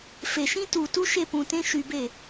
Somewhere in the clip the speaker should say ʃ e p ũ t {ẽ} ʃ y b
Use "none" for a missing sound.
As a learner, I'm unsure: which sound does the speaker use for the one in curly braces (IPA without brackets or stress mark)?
ẽ